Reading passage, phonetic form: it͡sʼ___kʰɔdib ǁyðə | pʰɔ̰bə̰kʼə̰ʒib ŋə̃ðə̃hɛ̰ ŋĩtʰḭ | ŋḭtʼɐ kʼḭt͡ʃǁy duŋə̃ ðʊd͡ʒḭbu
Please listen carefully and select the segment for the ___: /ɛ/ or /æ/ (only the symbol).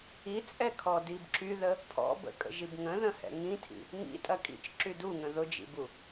ɛ